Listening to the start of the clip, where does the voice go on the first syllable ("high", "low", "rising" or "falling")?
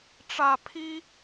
low